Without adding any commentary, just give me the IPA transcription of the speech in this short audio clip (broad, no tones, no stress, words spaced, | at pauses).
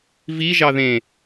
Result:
viʒɑ ðẽ